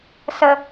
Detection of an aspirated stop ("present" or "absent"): absent